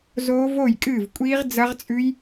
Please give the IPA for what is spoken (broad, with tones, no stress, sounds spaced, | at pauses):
z oː˦˥ v o˥˨ j kʼ ɨː˥˨ v kʷʼ iː˦˥ ʁ d͡z ɐ˦˥ ʁ t͡sʼ ʉ˦˥ j